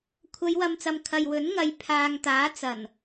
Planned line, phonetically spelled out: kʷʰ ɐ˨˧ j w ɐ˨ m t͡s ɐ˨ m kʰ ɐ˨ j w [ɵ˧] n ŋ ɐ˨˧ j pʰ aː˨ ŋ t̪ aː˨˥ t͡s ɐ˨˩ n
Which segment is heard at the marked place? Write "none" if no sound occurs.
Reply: ɵ˨˥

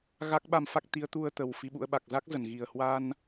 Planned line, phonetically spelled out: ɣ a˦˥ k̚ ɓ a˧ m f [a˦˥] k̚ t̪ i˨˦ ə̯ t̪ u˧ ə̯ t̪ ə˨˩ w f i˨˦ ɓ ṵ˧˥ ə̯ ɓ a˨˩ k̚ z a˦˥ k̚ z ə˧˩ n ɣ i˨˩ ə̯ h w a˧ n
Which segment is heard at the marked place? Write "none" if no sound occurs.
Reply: a˦˥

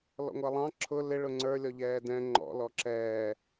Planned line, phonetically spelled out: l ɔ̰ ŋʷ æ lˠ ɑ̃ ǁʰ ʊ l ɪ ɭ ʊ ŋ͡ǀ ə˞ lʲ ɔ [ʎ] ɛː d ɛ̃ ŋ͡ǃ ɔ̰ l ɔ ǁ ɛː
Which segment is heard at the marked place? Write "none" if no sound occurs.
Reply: ʎ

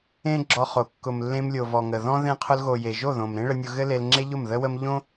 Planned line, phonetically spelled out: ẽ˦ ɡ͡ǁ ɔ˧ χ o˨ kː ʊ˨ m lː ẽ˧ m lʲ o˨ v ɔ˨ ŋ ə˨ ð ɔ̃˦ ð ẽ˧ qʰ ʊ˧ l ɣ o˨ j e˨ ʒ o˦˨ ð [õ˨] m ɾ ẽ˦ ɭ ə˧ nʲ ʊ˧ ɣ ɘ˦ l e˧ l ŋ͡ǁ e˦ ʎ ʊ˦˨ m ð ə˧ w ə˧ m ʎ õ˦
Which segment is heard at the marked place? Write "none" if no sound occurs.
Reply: õ˨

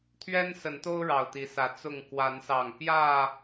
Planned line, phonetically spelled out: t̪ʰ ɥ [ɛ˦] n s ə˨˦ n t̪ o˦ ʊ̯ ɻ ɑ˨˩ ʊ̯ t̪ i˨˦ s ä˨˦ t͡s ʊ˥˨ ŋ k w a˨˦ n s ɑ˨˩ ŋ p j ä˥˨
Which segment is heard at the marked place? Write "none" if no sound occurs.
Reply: ɛ˦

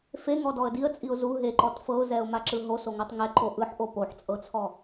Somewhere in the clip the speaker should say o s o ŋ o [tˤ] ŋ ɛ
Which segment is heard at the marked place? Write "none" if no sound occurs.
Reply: tˤ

